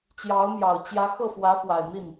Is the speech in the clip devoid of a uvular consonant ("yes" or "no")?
yes